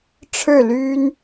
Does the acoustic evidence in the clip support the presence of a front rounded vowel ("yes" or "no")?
yes